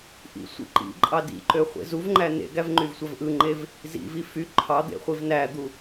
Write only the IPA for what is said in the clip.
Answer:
ʔḭ sʷḭǃḭǃʼɑ dḭǃø χʷḛzuvŋ͡ǃæ nḛɡæv ŋ͡ǃyvsʷævʔɯŋ͡ǃev | zḭvi fy ǃʰɑd̪ḛ χʷivnæd̪u

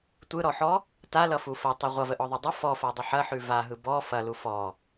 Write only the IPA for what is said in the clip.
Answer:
tʷɯɾɔħɔ | talʌfu fɐtˤʉ ʁʷʌvəʔɔðˤa dˤʌ fɔfadˤɐ ħɐħʉ vaɦɯ bɔ fɐlu fɔ

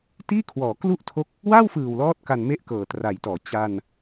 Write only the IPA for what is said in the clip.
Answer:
tiː˥˩kʰwɔː˩˦klu˥˩ʔtʰo˦˥k̚ | wa˥˩wfɯː˨˩w lɔː˥˩t̚ka˧n me˥˩ʔkɤː˨˩tra˩˦jtɔː˩˦ t͡ɕa˧n

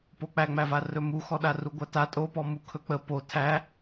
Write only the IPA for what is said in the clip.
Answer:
pok͡pæŋ͡mæva rɵmuxɔ ɗaruɡʷata tʼopɔmu kʰɵk͡pə po tʰæ

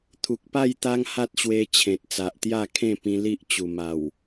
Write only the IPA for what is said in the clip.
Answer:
t̪ʰu˨k̚pa˥˧j t̪a˦ŋha˦t̚ɕwe˧t͡ɕʰẽ˨t̚ t͡sa˨ʔt̪ja˥˧kʰẽ˥˧pĩ˧ li˦ʔt͡ɕu˨˩ma˨˩w

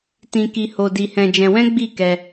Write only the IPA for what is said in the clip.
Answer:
tĩ˧ki˧ho˧ di˧hɛ̃˧d͡ʒɛ̃˧wɛ̃˦ ɡ͡bi˦˨kɛ˧

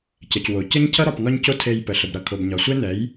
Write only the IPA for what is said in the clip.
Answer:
cə˨cwo˨cə˦ɲcʰʌ˦ ɾɒ˨pŋɒ˦ɲco˦ tʰe˧jpə˨ɬə˨bɾʌ˨ kʰo˨bɲɒ˨sʷe˦nɛ˨˦j

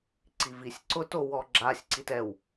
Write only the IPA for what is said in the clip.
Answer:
ǀivisʲǀʊto wɔɡ͡ǁasʲǀit ɛw

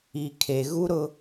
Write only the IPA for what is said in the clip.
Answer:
i˨kʰe˨ ɣu˦ɾʊ˦

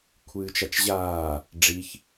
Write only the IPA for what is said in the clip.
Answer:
kʷʰɨːt͡ʃat͡ʃʑaː | ɖ͡ʐiç

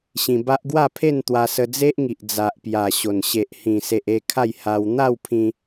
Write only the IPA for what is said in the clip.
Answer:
ɕĩ˧ba˦ʔ ɡwa˥˧pʰe˥˧n t̪wa˧sə˧d͡ze˦ʔŋi˨ʔ d͡za˨ʔpja˨˩ ɕo˨˩n ɕe˨ʔhĩ˨˩se˨ʔ e˥˧kʰa˥˧j ha˧w n̪a˥˧wpʰĩ˧

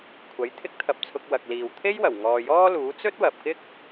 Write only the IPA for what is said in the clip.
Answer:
kʷʰɐ˨˥jt̪ʰɪ˥k̚t̪ʰɐ˧p̚t͡sʰʊ˧k̚ wɐ˨k̚liː˨w t̪ʰe˥jwɐ˨˩w ŋɔː˨jɔː˥luː˨˥ t͡sɵ˥t̚wɐ˨p̚kɪ˥k̚

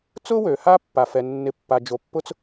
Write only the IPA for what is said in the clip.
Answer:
t͡sʊ˥wø˩ha˦ pːa˩fɛ˩nːɪ˨pːa˩ d͡ʒo˩pːʊ˥t͡s

